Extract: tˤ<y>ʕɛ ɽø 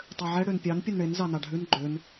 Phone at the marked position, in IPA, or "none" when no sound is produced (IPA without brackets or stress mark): ø